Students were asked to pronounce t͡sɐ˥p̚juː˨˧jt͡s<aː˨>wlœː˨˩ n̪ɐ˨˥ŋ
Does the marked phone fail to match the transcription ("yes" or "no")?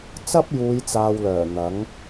no